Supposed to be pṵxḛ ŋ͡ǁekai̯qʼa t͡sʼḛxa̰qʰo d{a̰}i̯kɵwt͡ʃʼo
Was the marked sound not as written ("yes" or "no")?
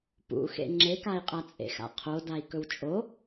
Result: yes